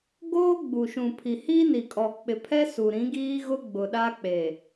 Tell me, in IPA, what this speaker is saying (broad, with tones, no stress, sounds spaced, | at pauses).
ɡ oː˦ ɡ͡b u˨ ʃ ũ˨ pʰ i˨ h i˦ n i˨ kʼ ɔ˨ k͡p ɪ˨ pʰ ɛ˦ s u˨ ɾ ĩ˨˦ ɡ iː˦ ɣ ʊ˦ ɡ͡b ʊ˨ ɗ a˦ k͡p e˨